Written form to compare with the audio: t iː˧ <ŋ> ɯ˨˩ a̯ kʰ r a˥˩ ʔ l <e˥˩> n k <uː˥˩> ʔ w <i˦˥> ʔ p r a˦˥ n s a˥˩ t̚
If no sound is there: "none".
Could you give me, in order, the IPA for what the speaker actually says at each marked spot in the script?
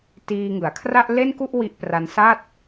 ŋ, e˥˩, u˥˩, i˦˥

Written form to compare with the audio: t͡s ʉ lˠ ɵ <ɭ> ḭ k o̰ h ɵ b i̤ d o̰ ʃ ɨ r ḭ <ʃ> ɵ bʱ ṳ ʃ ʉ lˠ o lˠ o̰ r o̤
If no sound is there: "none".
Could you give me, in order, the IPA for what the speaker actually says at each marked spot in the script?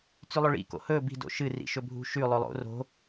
ɭ, ʃ

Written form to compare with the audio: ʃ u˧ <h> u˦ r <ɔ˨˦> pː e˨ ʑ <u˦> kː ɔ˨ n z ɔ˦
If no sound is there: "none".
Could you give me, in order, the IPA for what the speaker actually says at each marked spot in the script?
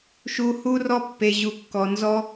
h, ɔ˦, u˨

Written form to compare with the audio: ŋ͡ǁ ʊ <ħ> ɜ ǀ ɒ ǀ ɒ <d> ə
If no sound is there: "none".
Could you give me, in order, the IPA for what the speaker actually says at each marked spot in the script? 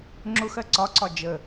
x, d͡ʒ

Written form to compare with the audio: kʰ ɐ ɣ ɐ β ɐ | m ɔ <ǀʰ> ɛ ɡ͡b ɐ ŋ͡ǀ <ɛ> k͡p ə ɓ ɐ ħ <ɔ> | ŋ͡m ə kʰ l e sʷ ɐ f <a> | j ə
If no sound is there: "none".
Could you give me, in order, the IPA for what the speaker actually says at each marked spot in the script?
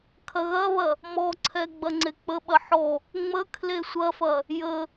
ǀʰ, e, ɔ, ɐ

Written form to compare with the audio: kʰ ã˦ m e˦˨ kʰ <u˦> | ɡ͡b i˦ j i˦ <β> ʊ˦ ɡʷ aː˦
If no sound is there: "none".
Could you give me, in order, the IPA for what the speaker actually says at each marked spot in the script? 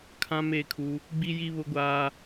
u˦, β

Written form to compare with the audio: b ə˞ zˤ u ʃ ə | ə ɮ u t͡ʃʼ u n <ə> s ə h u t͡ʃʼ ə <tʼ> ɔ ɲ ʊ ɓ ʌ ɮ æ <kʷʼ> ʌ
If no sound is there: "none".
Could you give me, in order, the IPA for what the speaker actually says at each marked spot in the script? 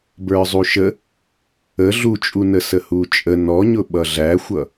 ə, n, xʷ

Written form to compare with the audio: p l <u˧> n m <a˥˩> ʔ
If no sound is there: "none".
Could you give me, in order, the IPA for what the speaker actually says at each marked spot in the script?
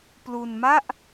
u˧, a˥˩

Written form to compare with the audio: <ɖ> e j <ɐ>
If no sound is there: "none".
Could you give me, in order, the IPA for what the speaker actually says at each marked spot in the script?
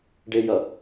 ɖ, ɐ

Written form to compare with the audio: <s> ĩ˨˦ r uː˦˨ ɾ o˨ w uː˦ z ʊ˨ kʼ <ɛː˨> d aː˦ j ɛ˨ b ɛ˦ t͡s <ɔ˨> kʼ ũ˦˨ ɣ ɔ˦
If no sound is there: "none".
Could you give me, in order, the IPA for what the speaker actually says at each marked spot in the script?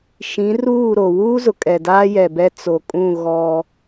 ʃ, ɛ˨, o˨

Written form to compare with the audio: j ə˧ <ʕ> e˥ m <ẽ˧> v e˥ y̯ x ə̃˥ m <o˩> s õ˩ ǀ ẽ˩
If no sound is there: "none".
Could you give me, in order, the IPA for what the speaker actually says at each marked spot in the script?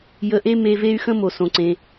ʔ, e˧, o˩

